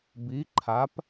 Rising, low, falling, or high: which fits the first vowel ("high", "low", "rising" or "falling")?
rising